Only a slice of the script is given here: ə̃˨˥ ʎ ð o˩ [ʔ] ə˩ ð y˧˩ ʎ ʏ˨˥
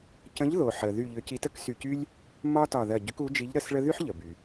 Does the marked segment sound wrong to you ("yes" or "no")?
yes